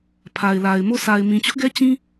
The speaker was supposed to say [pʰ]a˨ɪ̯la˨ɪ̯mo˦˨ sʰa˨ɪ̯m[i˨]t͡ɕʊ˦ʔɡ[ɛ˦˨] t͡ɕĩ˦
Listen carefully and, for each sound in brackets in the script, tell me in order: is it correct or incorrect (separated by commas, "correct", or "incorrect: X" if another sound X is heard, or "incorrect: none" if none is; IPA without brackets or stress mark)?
correct, incorrect: ĩ˨, incorrect: ɛ˦